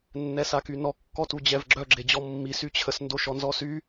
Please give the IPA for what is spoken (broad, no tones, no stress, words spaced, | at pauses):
nːɛsakynɔ kːɔtud͡ʑɛvɡ͡ǁœ ɡ͡ǁed͡ʑɔmːi syt͡ɕʰəs ndoʃɔnzɔsy